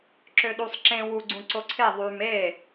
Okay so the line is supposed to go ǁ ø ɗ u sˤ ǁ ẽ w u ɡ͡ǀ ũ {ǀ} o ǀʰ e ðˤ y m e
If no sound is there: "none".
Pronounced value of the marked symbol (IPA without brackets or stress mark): ǀ